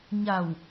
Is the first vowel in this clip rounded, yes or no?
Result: no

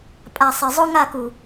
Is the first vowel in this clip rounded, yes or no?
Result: no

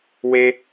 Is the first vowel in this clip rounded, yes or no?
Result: no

